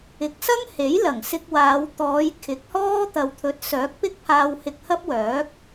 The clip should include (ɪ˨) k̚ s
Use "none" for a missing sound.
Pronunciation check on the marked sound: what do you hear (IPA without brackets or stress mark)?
ɪ˨˥